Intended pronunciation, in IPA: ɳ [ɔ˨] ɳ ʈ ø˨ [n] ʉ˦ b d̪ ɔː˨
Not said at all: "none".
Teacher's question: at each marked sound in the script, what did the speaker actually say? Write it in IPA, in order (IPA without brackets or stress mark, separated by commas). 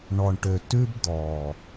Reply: ɔ˨, t